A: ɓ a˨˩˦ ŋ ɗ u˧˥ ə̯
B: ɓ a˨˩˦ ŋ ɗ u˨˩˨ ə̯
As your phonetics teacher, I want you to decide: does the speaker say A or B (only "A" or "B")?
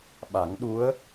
A